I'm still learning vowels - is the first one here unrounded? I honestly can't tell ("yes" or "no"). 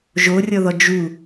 no